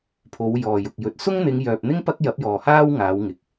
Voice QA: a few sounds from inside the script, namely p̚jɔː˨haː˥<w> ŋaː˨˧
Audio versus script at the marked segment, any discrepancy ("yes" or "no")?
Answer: no